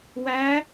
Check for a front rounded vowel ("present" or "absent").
absent